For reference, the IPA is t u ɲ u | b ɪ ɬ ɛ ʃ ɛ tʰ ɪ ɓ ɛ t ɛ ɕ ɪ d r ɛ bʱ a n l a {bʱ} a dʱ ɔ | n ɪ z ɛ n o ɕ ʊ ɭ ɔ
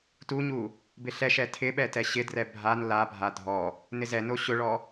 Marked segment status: correct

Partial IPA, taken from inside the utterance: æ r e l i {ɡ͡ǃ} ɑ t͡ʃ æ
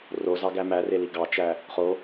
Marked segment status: incorrect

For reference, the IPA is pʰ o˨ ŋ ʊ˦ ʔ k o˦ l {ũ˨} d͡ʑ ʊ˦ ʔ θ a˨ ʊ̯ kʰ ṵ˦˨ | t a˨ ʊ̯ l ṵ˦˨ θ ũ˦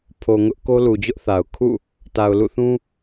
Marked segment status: incorrect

